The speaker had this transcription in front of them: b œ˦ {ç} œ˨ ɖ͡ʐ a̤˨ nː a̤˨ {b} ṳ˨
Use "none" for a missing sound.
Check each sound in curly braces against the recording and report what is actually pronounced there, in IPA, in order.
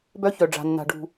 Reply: ç, ɖ

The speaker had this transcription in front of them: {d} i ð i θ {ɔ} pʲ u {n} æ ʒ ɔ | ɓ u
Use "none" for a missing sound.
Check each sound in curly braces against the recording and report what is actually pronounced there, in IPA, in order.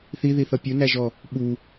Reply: θ, ʌ, n

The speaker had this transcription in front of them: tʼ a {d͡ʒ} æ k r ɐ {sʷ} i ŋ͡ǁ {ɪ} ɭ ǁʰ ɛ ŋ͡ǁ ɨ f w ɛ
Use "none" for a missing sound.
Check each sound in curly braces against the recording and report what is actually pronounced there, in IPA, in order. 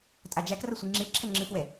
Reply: d͡ʒ, sʷ, i

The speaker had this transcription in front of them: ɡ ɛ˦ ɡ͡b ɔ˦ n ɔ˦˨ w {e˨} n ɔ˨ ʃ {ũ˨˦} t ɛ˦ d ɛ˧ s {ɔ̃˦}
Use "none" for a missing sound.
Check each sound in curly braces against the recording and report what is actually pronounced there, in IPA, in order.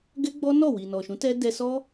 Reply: i˨, ũ˨˦, ɔ˦

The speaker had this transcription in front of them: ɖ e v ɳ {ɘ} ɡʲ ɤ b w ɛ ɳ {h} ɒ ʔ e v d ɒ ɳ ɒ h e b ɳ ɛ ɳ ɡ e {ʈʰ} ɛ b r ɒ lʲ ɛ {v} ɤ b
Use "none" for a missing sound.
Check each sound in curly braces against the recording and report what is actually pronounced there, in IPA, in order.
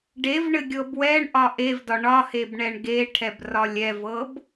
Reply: ɘ, ʔ, ʈʰ, v

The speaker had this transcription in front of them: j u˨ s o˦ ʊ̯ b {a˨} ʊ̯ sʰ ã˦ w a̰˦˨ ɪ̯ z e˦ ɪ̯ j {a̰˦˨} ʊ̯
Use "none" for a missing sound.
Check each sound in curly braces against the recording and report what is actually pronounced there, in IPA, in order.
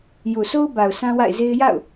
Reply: a˨, a̰˦˨

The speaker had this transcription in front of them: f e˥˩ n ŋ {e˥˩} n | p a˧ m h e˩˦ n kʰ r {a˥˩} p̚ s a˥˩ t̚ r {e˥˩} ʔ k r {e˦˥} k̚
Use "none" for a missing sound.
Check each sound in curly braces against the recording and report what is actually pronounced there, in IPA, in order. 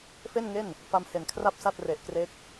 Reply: e˥˩, a˥˩, e˨˩, e˦˥

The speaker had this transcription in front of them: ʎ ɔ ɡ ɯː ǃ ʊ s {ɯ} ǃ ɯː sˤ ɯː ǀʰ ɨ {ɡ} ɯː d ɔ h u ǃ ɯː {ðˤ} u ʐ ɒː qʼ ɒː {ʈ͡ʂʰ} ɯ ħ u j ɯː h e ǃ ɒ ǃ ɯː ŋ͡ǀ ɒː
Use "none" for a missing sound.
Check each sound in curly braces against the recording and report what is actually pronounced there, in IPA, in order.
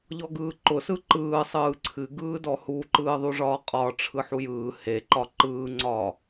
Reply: ɯ, ɡ, ðˤ, ʈ͡ʂʰ

